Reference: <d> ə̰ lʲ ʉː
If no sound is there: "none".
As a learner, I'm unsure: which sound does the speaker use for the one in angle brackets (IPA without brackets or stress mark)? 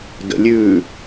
d